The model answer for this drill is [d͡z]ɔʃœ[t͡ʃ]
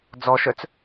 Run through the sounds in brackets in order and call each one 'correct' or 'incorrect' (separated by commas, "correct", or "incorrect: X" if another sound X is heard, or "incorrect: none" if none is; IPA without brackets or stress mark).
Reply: correct, incorrect: t͡s